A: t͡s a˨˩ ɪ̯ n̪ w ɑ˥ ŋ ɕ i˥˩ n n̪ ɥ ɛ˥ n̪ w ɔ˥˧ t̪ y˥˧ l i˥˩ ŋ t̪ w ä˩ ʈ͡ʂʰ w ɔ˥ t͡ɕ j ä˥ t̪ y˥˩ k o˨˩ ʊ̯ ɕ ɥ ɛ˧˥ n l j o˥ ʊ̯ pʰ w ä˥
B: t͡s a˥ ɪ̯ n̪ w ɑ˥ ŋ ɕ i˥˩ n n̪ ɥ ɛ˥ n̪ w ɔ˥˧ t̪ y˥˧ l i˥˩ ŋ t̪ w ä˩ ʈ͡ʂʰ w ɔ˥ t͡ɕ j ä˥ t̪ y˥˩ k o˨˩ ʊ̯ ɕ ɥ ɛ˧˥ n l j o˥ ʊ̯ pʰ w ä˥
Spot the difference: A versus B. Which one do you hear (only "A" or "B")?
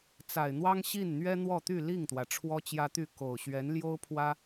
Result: A